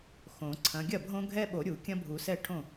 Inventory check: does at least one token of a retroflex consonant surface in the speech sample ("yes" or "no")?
yes